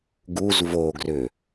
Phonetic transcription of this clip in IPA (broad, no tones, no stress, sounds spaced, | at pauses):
ɡ u z v o ɡ r ʏ